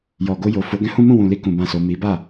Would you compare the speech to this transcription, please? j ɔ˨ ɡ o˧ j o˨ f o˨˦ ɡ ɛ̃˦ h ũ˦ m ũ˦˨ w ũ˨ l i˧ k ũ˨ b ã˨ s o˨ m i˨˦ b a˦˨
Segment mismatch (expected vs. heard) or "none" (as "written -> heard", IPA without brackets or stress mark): none